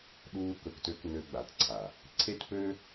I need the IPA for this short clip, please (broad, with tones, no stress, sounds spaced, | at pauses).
ɗ uː˧ k ɵ˨ k t ø˧ k n ø˧ ɡ͡b a˨ t ǀʰ a˨ | ǀʰ e˦ t p ø˦